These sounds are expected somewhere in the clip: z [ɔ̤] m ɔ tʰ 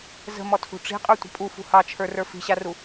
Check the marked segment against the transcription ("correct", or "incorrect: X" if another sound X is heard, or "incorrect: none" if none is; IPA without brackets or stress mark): incorrect: ə̤